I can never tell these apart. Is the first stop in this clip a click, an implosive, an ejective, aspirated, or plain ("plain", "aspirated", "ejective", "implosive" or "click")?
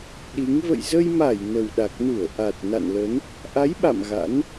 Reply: implosive